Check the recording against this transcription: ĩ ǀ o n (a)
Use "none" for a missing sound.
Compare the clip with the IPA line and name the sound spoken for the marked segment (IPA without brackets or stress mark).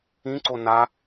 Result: a